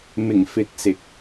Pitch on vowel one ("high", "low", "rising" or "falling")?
low